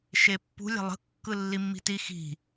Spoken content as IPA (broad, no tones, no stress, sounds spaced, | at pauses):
ʃ e pː ṳ lʲ a̤ lˠ ə̤ kː ɯ lː i mː i̤ t i x i̤